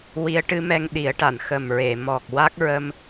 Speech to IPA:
w i˧˥ ə̯ ʈ ɨ˧˥ m ɛ˧ ŋ ɗ i˨˩˦ ə̯ ʈ a˨˩˨ n x ə˨˩ m ɹ e˨˩˨ m ɔ˨˩ k̚ w a˦˥ k̚ ɹ ə˧ m

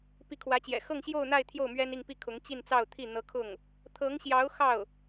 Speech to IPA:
p i˧˥ kʰ w ä˧˥ t͡ɕ j ɛ̰˨˩ x ɤ˥˧ ŋ ɕ j o˥˧ ʊ̯ n̪ a˥˧ ɪ̯ t̪ʰ j o˥˩ ʊ̯ m ɥ ɛ˥ n i˥˧ ŋ p i˥˩ kʰ ʊ˧˥ ŋ t͡ɕ i˥˧ n t͡s ɑ˥˧ ʊ̯ t̪ʰ i˥˩ n̪ ɤ˧˥ kʰ ʊ˥˩ ŋ | t̪ʰ ɤ˧˥ ŋ ɕ j ɑ˧˥ ʊ̯ x ɑ˥˩ ʊ̯

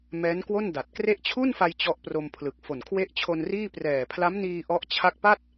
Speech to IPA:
m ɛː˦˥ n k w o˥˩ n d a˨˩ t̚ k r e˦˥ ʔ t͡ɕʰ u˥˩ n f a˧ j t͡ɕ ɔ˦˥ ʔ p r o˧ m pʰ l ɯ˨˩ k̚ f o˨˩ n kʰ w e˦˥ ʔ t͡ɕʰ o˧ n r iː˥˩ p r ɛː˨˩ pʰ l a˦˥ m n iː˧ ʔ ɔ˦˥ ʔ t͡ɕʰ a˦˥ k̚ p a˥˩ t̚

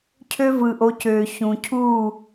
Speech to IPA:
cʰ ø˦ v ɯ˨ ʔ o˨˦ c øː˨ ç ũ˨ cʰ uː˦˨

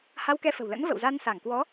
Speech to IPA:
h a˧ w k ɛ˧ f ə̤˨˩ w l ə̰˧˥ n v ə̰˧˨ w z a˧ n s a˧˩ ŋ k w ɔ˨˦

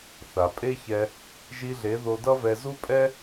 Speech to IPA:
θ a˨ pʼ e˦ ç ɛ˧ | ʒ i˧ ɮ e˨˦ ð o˧ d ʌ˦ v ɛ˧ z u˦ pʼ ɛ˦

